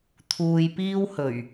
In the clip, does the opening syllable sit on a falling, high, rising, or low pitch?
low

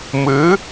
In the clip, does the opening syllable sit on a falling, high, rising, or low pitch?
rising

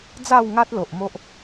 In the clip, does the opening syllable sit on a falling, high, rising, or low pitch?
falling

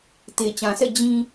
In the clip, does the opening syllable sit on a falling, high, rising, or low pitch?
low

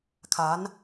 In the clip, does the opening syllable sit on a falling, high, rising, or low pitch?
rising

